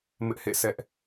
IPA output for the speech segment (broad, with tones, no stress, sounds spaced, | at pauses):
m ɪ˦ ʔ h ḛ˦˨ sʰ ɛ˦ ʔ